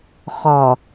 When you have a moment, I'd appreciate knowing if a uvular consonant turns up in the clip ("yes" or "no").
yes